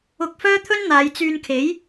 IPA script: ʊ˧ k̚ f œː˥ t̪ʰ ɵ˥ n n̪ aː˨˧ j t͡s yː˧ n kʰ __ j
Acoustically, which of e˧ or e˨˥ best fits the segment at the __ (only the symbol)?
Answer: e˨˥